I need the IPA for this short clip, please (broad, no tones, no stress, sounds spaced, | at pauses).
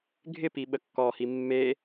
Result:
ɡʱ ɪ p i ɓ ə kː ɔ h i mː e